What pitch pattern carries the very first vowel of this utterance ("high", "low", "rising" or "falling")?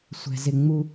high